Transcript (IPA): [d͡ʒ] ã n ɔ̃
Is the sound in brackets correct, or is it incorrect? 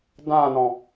incorrect